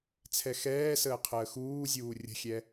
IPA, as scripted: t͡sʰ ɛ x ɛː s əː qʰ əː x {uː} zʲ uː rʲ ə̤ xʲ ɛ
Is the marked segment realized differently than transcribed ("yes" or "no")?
no